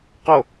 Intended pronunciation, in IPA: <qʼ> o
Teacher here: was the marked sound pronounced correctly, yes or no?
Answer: no